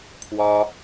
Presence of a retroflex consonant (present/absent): absent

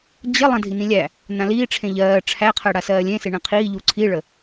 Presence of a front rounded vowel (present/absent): absent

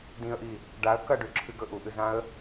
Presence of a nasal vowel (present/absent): present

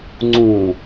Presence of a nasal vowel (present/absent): present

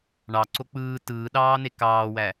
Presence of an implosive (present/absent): present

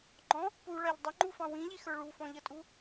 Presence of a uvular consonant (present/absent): absent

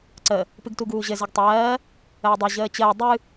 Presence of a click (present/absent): present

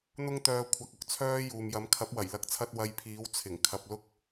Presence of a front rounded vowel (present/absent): present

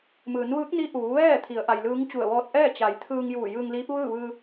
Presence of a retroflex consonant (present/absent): absent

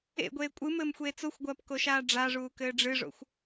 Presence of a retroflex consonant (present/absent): present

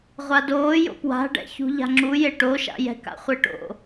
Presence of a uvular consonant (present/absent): present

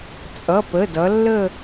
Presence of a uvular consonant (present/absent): absent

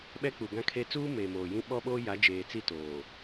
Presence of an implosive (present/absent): present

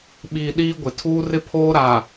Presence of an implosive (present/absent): present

